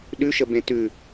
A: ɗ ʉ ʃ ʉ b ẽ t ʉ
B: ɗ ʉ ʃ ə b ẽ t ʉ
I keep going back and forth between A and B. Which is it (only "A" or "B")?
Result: B